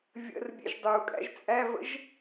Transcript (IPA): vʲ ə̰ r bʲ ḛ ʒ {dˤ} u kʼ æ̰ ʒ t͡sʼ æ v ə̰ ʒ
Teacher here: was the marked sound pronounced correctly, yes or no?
yes